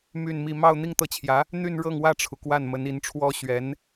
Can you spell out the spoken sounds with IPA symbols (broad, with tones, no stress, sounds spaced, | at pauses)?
m y˥˧ n m i˥˧ m ɑ˥˧ ʊ̯ n̪ i˥˧ ŋ t̪ ɤ˥˩ t͡ɕʰ j ä˧˥ | n̪ y˥˧ n ɻ ɤ˥˧ ŋ w ä˥˩ ʈ͡ʂʰ u˩ k w a˥˩ n m ə˧˥ n i˧˥ n ʈ͡ʂʰ w ɔ˥ ɕ ɥ ɛ˧˥ n